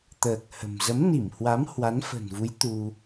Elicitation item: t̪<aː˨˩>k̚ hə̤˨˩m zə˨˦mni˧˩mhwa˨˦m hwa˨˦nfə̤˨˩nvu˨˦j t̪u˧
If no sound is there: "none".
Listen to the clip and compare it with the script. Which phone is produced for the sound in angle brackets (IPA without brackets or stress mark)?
əː˨˩